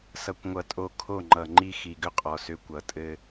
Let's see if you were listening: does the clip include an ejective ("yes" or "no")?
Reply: yes